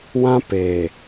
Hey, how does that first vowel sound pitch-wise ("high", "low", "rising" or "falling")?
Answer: high